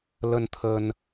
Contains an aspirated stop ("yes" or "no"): yes